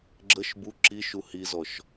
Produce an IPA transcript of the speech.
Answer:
ɡ͡ǁ ə ʃ b u ǁ i ʃ u h i z ɔ ʃ

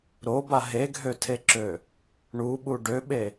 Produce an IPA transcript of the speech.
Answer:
ɾ o b a ɦ e ɡʱ ø tʰ e ǁ ø | ɳ u ɓ u ɖ ø ɓ e

